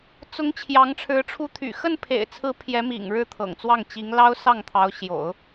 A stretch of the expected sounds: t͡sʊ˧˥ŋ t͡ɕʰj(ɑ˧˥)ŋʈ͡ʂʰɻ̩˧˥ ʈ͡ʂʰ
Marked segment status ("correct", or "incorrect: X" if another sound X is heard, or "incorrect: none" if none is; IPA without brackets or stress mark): correct